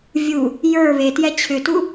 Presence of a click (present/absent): absent